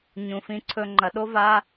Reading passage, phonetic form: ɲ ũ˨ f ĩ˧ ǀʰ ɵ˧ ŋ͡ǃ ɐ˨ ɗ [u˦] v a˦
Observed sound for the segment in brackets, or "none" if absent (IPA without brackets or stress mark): o˦